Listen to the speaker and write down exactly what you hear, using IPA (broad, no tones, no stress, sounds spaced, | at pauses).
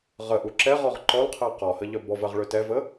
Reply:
ʁ ə ʔ u ǁ ɛ ʁ ɔ ʁ ǃ ɔ l qʰ ɜ q ɔ h ə ʎ œ b ɔ v ɜ ʁ ɭ ø t ɛ v ə